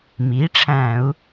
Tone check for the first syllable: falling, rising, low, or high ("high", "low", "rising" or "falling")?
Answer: rising